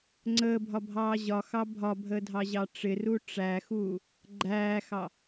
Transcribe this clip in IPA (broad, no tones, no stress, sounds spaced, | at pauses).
ŋ͡ǀ əː bʱ ɒ bʱ ɑː ʑ ɒ x ɑ bʱ ɒ bʱ əː dʱ ɑ ʑ ɑ ʈ͡ʂ ɪ r u ʈ͡ʂ æ x uː | ɡ͡ǃ æː x ɑ